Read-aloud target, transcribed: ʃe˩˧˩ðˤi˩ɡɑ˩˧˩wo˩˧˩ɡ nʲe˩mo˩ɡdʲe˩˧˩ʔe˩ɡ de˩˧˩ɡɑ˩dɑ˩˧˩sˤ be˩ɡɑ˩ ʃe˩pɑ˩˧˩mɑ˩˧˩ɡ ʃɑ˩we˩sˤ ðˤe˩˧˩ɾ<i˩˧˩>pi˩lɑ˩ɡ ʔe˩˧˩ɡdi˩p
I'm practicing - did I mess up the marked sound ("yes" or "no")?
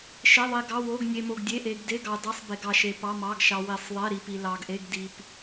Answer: yes